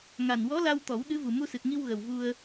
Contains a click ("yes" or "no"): no